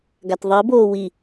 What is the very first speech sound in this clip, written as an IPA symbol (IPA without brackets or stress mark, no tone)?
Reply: ɡ